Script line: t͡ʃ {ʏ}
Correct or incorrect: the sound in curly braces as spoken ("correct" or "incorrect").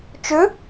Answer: correct